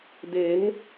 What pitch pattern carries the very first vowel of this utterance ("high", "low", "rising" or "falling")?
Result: rising